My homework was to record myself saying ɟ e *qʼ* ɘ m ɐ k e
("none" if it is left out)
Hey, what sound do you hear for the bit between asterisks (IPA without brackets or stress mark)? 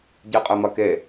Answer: qʼ